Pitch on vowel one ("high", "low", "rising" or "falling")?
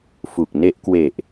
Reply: low